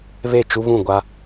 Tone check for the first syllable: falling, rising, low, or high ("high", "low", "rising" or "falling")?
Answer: falling